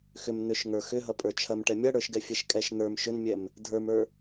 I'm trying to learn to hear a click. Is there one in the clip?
no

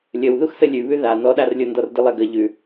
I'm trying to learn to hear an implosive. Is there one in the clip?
yes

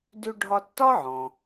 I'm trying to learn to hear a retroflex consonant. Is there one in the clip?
yes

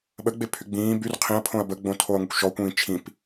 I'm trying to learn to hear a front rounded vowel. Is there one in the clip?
yes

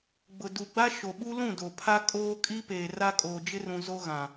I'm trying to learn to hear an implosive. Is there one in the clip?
yes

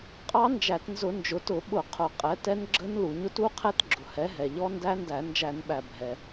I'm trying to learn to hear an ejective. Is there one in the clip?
yes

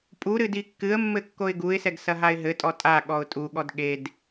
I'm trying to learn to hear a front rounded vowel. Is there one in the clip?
no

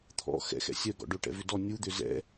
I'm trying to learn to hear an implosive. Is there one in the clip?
no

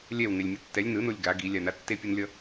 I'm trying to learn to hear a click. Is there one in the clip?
no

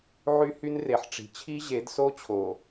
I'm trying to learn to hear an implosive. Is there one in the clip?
no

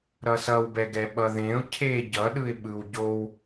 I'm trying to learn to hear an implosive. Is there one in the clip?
yes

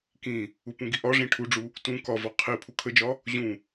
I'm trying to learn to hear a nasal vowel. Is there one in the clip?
yes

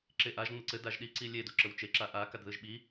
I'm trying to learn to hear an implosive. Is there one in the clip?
yes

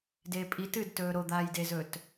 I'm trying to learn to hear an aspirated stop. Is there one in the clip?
no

